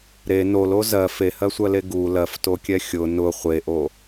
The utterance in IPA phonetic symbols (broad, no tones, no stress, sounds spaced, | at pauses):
ɾ e n o l o z ɜ f e h ɜ sʷ ɜ l e ɡ u l ɜ f t o kʲ ɛ xʲ ʊ n ʊ χʷ e ʔ o